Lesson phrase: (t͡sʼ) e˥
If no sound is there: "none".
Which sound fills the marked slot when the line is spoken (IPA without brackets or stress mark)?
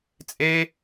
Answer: t͡sʼ